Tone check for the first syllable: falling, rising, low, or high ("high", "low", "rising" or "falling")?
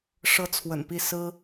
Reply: high